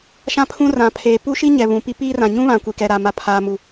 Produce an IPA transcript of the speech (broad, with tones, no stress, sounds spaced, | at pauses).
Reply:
ʃ ã˦ pʰ ũ˦ r ã˨ pʰ eː˨ p u˦ ʃ i˦ ɲ ɛ˨ β ũ˨ p i˦ p iː˦ r ã˨ ɲ ũ˦ β ã˨ kʷ i˨ k ɛ˨ ɾ a˨ m a˨ pʰ aː˨ m u˨